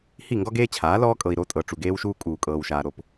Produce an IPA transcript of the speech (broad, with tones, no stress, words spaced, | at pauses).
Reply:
hi˦˨ŋɡɔ˦ɡeː˦t͡ɕʰaː˨˦ lɔː˦kʼɤ˨i̯ ɾo˦tʼɤ˨ ʈ͡ʂu˨ɡeː˦wʃuː˦ kʼuː˨kʼɤː˨wʃaː˨ ɾo˦p